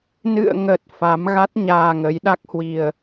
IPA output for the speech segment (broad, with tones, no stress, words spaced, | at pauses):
nɨ̰˧˨ə̯ŋə˨˩t̚ fa˨˦mɣa˦˥t̚ ɲaː˧ŋə˨˦jɗa˦˥k̚hwi˧ə̯